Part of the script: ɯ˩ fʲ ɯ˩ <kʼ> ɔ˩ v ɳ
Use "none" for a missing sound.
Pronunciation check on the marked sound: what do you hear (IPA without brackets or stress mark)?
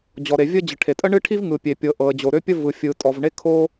tʼ